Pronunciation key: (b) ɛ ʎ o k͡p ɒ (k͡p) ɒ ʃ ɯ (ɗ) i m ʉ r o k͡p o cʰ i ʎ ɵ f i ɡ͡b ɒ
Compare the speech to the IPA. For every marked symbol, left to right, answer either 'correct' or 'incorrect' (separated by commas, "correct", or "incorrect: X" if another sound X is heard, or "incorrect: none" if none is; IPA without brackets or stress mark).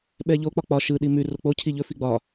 incorrect: ɓ, correct, correct